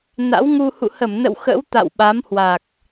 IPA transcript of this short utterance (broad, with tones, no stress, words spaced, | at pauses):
na̰˧˥wŋu˧ hṵ˧˨hə˧˩mnə̰˧˨w xə̰˧˥wt̪a̰˧˨w ɓa˨˦mhwa˨˩k̚